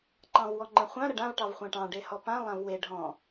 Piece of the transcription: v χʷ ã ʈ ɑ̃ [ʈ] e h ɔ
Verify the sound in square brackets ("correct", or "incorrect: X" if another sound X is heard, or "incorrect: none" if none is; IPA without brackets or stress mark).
incorrect: ɖ